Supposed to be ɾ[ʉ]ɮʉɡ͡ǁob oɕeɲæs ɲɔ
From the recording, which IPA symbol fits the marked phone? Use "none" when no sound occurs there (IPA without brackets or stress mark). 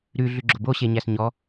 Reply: ʉ